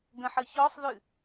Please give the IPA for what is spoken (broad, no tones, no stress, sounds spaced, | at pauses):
ɡ ə̃ ħ ə ç ɔ sˤ ð ʉ